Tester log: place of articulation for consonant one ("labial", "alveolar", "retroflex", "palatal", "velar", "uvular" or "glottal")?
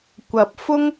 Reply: velar